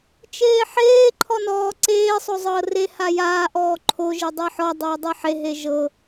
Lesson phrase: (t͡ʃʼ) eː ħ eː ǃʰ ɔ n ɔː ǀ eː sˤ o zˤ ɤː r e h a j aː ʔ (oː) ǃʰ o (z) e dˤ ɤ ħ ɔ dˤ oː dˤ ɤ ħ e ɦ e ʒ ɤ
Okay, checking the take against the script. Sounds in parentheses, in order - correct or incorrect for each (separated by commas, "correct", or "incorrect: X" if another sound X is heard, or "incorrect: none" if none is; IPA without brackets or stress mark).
incorrect: t͡ʃ, incorrect: ɔː, incorrect: ʒ